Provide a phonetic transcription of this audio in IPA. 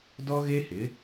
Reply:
d ɔ˦ ɣ e˦ h ɪ˨˦

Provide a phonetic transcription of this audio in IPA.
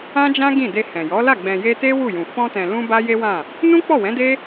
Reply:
ã˦ d͡ʒ ã˦ ɡ ĩ˦˨ d e˧ h ɛ̃˨ j ɔ˨˦ l a˦˨ ɡ͡b ɛ̃˨ j e˧ t e˦ w u˦˨ j ũ˨ f ɔ̃˧ t ɛ̃˨ l ũ˧ b a˦ j e˦ w ã˦˨ | n ũ˦ k͡p ɔ˦˨ w ɛ̃˨˦ d e˦

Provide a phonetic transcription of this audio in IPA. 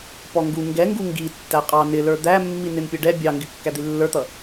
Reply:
p ɔ ŋ ɡ u ŋ ɡ ɛ ŋ ɡ u ŋ ɡ i tː æ qʼ ɑ n ɪ l ə˞ d̪ æ mː i n ɪ n pʲ ʊ ɖ ɛ bʲ ɑ ŋ ɡ ɪ kː æ d̪ i lː ə˞ t̪ ʌ

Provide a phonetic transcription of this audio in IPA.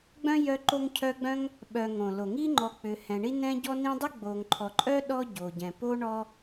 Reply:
ɡ͡b œ̃˥ j œ˦ ǃ o˦ ŋ cʰ œ˦ ɡ͡b œ̃˥ ŋ | ɓ œ˨ ŋ õ˩ l o˩ ŋ i˦ ŋ͡ǃ ɔ˨ k͡p ʏ˨ h ɛ̃˨ ɳ i˥ n ɛ̃˥ ɟ ɔ˥ n ĩ˥ dˤ ʏ˥ ɡ͡b o˨ ŋ ǃʰ ɔ˨ ǃʼ œ˥ ɗ ɔ˥ ɟ o˨ ɟ ɛ̃˨ p o˥ ɳ ɔ˥

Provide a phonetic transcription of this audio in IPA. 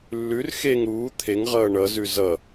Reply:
lː ʉ r x e ŋ ɾ uː t̪ʰ e ŋ ʁ ʌː ɳ ʌ z ʉ z ʌ

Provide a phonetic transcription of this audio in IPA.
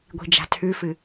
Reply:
ɡʷ i̤ d͡ʒ a̤ tʰ ʉ f ɨ

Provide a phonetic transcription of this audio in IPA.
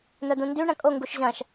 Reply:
n̪ œ d̪ ũ n d y ɳ ɐ̃ kʼ o ŋ ɡ u ʃ ʑ ɐ̃ ʃ

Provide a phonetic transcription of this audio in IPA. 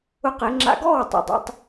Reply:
ʊ˦ q e˨˦ ŋ͡ǁ a̰˧ ɡ ɔː˦˨ w tˤ ṵ˨ dˤ ḭ˦ tˤ

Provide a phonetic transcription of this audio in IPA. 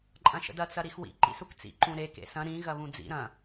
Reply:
ǃʼ ɐ̃ ʃ ə̰ d ɐ t͡s ɐ ɾ i x w ḭ ǃ ḭ s u k t͡s ḭ ǃ ũ ɾ e k ḛ s ɐ̃ ɾ ĩ ɣ ɐ β ũ d͡z ḭ ɾ ɐ̃

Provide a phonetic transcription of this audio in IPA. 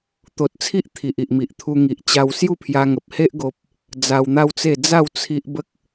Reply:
t̪ o˨ t̚ t͡sʰ i˦ ʔ t̪ʰ i˨ ʔ i˨ ʔ m i˨ ʔ t̪ʰ u˧ ŋ i˨ ʔ t͡ɕ a˧ w s j u˥˧ pʰ j a˧ ŋ ə˨ p̚ h e˦ ʔ ɡ o˦ p̚ | d͡z a˧ w n̪ a˦ w t͡s e˥˧ d͡z a˥˧ w t͡sʰ i˦ ʔ b ə˦ k̚

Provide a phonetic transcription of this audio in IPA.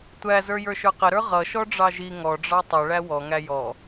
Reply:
tʷ æ z ə˞ j ə˞ ʃ ə˞ q ɪ ɾ ə˞ ʁ ʌ ʃ ɔ ɖ͡ʐ ɑ ʒ i ŋ ɔ ɖ͡ʐ ɑ tˤ ʌ ɭ æ w ɔ ŋ æ j ɔ

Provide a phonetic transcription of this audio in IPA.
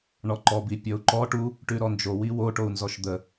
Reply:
ɳ ɔ ǃ ɔ b i pʲ ɔ u̯ ǃ ɔ ʈ u | ʈ ʉ ɾ ɔ n d͡ʒ o w i w o ʈ o u̯ n z ɔ ʃ d̪ ə

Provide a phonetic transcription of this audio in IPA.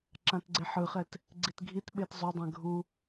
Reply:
ǁ ã t ɡ͡ǀ e ħ ɯ χ ɛ t | ɡ͡ǀ i t ɡʱ i t ɓ e t zˤ o dˤ ɛ̃ ɡʱ u

